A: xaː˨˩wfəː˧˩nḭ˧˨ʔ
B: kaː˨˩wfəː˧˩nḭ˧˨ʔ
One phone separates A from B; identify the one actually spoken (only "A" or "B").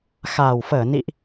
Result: A